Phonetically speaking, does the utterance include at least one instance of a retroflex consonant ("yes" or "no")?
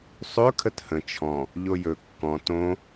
no